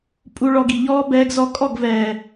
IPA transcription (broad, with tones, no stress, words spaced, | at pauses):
pʼu˧ɭɔ˧ɡi˨ʎɔː˦ bɛː˧ɡzɔ˧kʼɔ˦˨ɡ vɛː˨